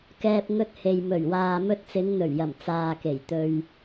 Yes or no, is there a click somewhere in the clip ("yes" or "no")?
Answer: no